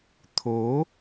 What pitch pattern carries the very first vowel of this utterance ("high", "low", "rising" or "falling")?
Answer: rising